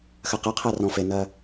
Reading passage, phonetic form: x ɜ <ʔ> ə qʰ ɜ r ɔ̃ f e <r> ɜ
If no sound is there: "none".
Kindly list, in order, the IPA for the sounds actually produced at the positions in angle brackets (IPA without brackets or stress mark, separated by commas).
q, n